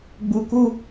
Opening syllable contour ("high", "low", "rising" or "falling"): low